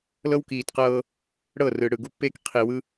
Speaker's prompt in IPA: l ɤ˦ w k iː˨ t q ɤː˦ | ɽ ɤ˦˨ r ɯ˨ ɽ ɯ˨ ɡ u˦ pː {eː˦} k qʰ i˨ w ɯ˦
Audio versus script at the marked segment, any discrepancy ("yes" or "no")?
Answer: no